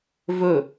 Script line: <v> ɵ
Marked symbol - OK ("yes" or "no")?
yes